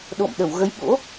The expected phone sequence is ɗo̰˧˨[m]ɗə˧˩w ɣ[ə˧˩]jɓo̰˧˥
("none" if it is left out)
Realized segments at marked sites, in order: m, ə˨˦

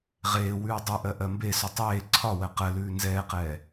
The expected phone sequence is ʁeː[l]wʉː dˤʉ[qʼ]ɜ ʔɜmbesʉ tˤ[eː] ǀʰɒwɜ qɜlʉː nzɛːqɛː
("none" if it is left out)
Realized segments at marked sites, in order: none, ʔ, eː

